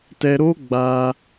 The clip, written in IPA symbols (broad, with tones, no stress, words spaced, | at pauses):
tɛ˧ ɾo˦ ɡ͡ba˧